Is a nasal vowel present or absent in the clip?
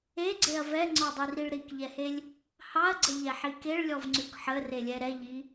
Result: absent